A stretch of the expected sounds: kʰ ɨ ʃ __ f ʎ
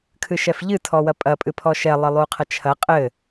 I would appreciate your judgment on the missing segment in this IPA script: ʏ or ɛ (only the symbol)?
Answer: ɛ